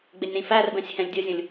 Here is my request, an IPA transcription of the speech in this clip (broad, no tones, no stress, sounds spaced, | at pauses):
ɡ͡b ɪ nʲ ɾ ĩ f æ r b ɛ̃ sʲ h ɛ̃ lʲ dʲ ʊ zʲ ũ lʲ